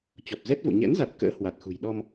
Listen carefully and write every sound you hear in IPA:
t͡ɕ ɔ˨˩ p̚ z ɛ˦˥ t̚ v o̰˧˨ ɲ ɛ̰˧˥ n z a˨˩ t̚ k ə̰ː˧˥ h w a˨˩ t̚ x ṳ˨˩ j ɗ ɔ˧ m

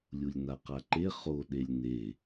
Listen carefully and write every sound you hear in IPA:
lʲ u lʲ n a q a ǃ e χ o ɗ e lʲ n e

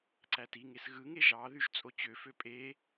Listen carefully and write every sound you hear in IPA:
ǀ æ t i ŋ e s ɣ ɯ ŋ e ʒ ɑ ð y ʒ t͡sʼ o t͡ɕ ø f ø pʼ e

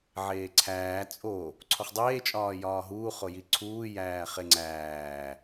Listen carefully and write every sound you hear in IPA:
ʕ eː ǀʰ æː t͡sʼ o | ǀʰ o χ dˤ eː t͡ʃʼ ɒː j ɒː ɦ uː χ o j i ǀʰ uː j æː χ e ŋ͡ǀ æː

